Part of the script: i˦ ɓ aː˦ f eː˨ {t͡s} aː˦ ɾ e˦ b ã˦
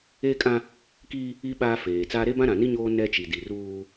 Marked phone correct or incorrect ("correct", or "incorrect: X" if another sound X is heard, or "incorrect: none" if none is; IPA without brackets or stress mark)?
correct